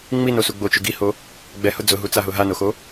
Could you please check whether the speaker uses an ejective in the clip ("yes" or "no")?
no